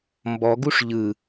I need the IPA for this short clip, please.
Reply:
m b ɔ ɡ u ʂ ʎ ɯ

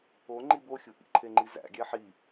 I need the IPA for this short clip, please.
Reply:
o ŋ͡ǃ i b o xʲ u ʔ ḭ ǃʰ e ŋ͡ǃ i z æ̰ ɡʲ æ ħ i

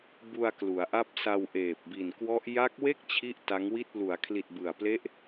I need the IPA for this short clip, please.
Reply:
b u˧ a̯ k l u˩˦ a̯ ʔ a˦˥ p̚ s a˧ w ʔ eː˨˩ p̚ b i˨˩ n k w ɔ˦˥ ʔ j a˦˥ k̚ w e˥˩ k̚ t͡ɕʰ i˥˩ ʔ t a˦˥ ŋ w i˥˩ t̚ l u˩˦ a̯ kʰ l i˨˩ t̚ b ɯ˨˩ a̯ p l e˦˥ ʔ

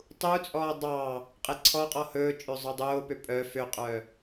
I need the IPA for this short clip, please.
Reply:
tˤ u t͡sʼ ɔː dˤ ɑ | qʼ e ǀʰ ɔ qʼ ɔ h ɵː t͡ʃʼ ø zˤ œ dˤ oː p ø pʼ œ f ø qʼ œ

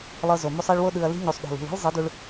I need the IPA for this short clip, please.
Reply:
lˠ ɤ˧ z o˨ m u˧ sˤ ɛ˧ ɭ w o˧ ɗ ɯ˨ ɐ̯ l i̤˧ ɲ u˨ sˤ ɗ o̤˨ l ṳ˨ l i̤˦ l zˤ ɯ˨˦ d u˧ ɭ

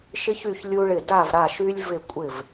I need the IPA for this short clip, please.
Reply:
ʃ ɪ˧ ç y˧˩ ç lʲ u˧ ɭ ɪ˧˩ d a˧˩ v ɾ a˧˩ ʃ y˧ lʲ v ɪ˧˩ kʷʼ ɪ˧˩ v

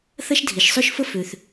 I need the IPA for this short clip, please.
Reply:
θ ɐ˥ ʃ dʱ i˩ ʃ sˤ ʏ˥ ʃ f ə˥ f ø˩ θ

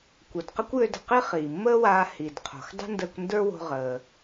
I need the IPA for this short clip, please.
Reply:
kʷ ə˩ d q ə˥ kʷ j ø˧ d ə̤˩ q i˥ χ iː˩ mː əː˥ w aː˧ h i˩ d qʰ o̤˩ x dˤ ə̤˥ n d əː˧ kʷ n d ə˞˥ w o̤˧ ʁ əː˩

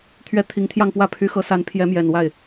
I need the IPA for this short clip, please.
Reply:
t̪ʰ ɥ ɛ˥ t̪ʰ i˧˥ ŋ t̪ʰ j ɑ˥˧ ŋ p w ä˥˩ pʰ y˧˥ x ɤ˧˥ s a˧˥ n pʰ j ɛ˧˥ m j ɛ˨˩ n w a˥˩ ɪ̯

